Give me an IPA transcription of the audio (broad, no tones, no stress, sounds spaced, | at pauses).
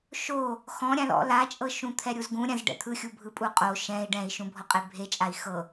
ʃ o | x ɔ̃ ɾʲ ã l ɔ̰ l a t͡ʃʼ ɤ ʃ ũ t̪ʰ ɛ ɾʲ u z ɡ ũ ɾʲ ã z ɖ ɛ̰ t̪ʰ ɯ xʲ u bʱ ɯ pʼ u qʼ o ʃ ɛ̃ i̯ ɖ ɛ̃ i̯ ʃ ũ bʱ ɔ qʼ e bʱ e t͡ʃʼ a i̯ x ɤ